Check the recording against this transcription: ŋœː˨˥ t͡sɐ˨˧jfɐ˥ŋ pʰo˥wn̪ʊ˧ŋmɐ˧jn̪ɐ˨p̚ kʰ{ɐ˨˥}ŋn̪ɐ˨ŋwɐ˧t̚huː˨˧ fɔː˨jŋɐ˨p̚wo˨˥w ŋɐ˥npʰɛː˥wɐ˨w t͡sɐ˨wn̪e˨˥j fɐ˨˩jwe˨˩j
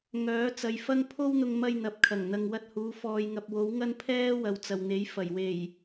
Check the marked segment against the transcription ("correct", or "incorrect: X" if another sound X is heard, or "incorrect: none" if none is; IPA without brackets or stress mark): incorrect: ɐ˨˩